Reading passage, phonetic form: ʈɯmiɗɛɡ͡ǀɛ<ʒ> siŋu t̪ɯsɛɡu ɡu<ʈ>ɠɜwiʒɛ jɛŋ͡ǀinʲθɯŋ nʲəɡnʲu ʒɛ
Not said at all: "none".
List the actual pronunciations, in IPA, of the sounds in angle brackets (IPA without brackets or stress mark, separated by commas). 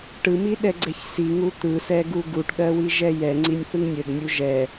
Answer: ç, ʈ